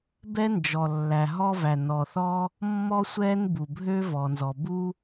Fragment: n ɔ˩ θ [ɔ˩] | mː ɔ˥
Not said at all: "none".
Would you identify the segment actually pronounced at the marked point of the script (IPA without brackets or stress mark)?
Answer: ɔ˥